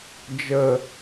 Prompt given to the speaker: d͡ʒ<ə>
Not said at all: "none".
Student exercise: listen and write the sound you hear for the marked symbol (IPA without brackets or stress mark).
ə